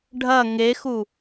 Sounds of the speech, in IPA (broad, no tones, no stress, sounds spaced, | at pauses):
ɖʱ ɐ ŋ e x u